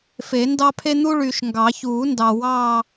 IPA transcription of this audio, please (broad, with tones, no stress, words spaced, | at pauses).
fe˨˩˦ndɑ˥pʰe˥ n̪u˥ɭyː˨ʃŋɡɑ˨˩˦ çuː˨˩˦ ndɑ˨wɑː˥˧